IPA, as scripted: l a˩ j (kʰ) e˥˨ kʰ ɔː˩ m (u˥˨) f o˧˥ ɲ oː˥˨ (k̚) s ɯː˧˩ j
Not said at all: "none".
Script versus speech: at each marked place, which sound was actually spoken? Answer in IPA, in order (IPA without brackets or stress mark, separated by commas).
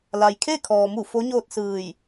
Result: kʰ, u˧˩, t̚